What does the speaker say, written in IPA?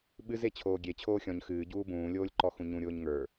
ɓɨz et͡ɕʰoːɡʲe t͡ɕʰoːxʲɔ̃ɲ xɨː ɟuːbũː lʲoːlʲǃɔxũɲũ ɾʲʊːɲŋə˞

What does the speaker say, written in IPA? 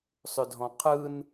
sˤʏdʱɔ̃qʰɯn

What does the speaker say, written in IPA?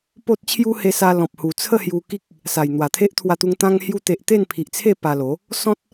po˦t̚ t͡ɕʰju˦he˧sa˧ lɔ̃˨p̚hu˨˩t͡sʰə˥˧hju˧ ki˦k̚ | sa˨˩jn̪wa˨˩ t̪ʰe˦ʔt̪ʰwa˧t̪u˧ŋ t̪ã˧ŋhju˧t̪e˨ʔ t̪e˥˧npʰi˨ʔt͡sʰe˥˧ pa˧lo˨˦ | sɔ̃˦t̚

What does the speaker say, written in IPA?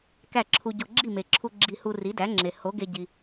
kæ˥˩ǁʰu˧ɟo˧ ɡ͡ǁi˥˩me˩ǁʰu˧ ɡ͡ǁi˧hu˧ ri˩˥dæ˩˥ŋ͡ǁe˩ ho˩˥ɡe˧ɟi˩

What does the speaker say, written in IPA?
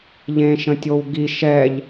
ʎẽ ʃə̃tʲowɡi ʃɛʎ

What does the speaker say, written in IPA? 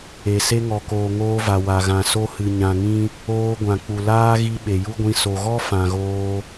e˨ se˧ŋɔ˨koː˨ ŋoː˧va˨wa˨ɣã˨ so˧hɨ˨ ɲã˨ŋĩ˧ | oː˧ɡʷã˨k͡pu˨ laː˦ɣi˧ ɓe˨ju˦ɡʷĩ˧ so˨ɣɔ˦ fã˨ɣoː˧

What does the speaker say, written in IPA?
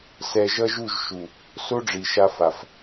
sɛ˧ʒʌ˦ʒu˦˨ʒ ʃu˨ | so˦ɖ͡ʐi˨ʃa˧fa˨f

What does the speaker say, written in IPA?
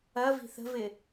ɐvi̤ θə̤vɪ

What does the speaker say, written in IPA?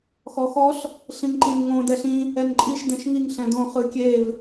xɔxɔɬ | ɬĩŋǃĩnŋõ dɛɬĩ | ɛnǃʼiʃ dɛ̃ʃŋiŋ ɬɛ̃dõ χɯkʲev

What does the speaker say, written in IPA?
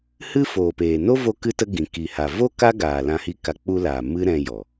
hɨ˦foː˨peː˨ no˦vo˧kɨ˧tə˧ ɡĩ˨ki˨ ha˨ vo˦ ka˦ ɡaː˨lã˧hi˧ ka˧ k͡pu˧laː˨ mɨ˦ɾɛ̃˧ jɔ˨

